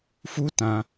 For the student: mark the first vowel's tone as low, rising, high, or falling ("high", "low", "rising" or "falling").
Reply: high